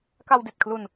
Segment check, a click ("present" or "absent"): absent